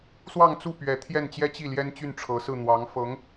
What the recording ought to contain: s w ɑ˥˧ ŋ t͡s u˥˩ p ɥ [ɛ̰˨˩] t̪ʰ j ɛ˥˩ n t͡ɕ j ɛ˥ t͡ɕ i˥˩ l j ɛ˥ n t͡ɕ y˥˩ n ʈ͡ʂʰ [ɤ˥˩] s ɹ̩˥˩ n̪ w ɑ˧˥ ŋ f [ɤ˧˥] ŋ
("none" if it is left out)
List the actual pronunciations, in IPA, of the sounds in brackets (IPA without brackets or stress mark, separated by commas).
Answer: ɛ˧˥, ɤ˧˥, ɤ˧˥